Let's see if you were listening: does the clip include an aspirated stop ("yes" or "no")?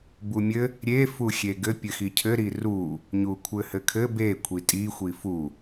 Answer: yes